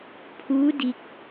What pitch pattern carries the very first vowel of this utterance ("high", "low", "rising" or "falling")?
rising